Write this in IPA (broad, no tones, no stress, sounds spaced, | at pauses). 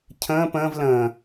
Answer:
cʰ ə̃ː p ə̃ː v l ə̃ː